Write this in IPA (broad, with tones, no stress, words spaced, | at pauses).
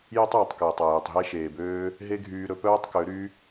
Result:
je˦tˤjɵ˨tˤ kɛː˨tˤæ˨jɵ˨tˤɦɛ˦ ʃeː˨bøː˦ | ɦe˦ɡʱyː˧ ɾɵ˦ pœː˦tˤkø˨˦ɾy˦